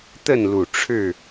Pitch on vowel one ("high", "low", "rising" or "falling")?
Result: falling